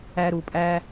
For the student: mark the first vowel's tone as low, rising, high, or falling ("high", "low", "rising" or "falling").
high